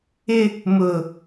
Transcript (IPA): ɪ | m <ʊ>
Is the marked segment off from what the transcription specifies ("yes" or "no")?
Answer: no